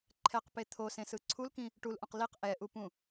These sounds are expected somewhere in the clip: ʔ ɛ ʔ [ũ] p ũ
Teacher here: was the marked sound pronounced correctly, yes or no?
no